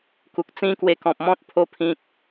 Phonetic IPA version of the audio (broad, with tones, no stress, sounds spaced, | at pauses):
k u˨ k̚ t͡s ĩ˦ k w e˧ k ɔ̃˨ p̚ m ɔ̃˦ t̚ pʰ o˧ pʰ ĩ˨ k̚